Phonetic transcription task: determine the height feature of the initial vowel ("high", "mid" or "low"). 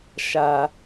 low